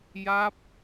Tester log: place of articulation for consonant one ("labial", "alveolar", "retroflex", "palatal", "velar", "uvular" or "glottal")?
palatal